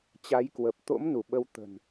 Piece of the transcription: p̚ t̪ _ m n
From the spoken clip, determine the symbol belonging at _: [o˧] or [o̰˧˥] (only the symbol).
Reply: o̰˧˥